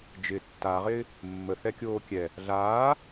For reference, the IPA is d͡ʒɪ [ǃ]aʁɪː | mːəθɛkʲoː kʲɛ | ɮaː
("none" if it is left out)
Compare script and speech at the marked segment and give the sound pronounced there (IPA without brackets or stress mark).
tː